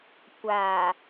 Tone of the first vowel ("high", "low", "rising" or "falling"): low